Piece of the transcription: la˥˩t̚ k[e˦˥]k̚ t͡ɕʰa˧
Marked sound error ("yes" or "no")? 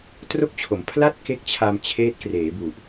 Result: no